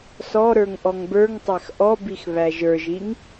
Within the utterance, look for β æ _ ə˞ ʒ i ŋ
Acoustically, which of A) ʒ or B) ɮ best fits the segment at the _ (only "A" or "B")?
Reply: A